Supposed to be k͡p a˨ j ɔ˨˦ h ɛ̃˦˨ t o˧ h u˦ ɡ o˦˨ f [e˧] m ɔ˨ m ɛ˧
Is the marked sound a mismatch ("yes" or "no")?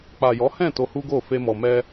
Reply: no